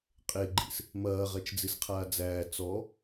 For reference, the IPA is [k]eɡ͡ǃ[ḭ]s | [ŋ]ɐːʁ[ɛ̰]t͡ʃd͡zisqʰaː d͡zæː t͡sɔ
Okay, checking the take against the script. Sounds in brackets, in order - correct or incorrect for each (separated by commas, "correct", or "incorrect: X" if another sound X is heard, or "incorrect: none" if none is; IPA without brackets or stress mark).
incorrect: qʼ, correct, incorrect: m, incorrect: ɛ